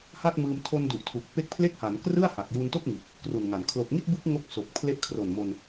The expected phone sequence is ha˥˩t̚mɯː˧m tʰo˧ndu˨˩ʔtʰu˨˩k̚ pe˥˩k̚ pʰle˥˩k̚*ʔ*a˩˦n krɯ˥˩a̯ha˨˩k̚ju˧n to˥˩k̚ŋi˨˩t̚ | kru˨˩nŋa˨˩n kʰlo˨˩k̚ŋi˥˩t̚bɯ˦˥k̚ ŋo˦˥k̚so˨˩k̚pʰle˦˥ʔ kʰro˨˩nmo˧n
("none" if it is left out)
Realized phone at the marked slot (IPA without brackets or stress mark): h